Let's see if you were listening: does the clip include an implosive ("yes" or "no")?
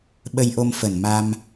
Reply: yes